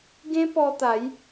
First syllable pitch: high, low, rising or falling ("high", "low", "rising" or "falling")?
high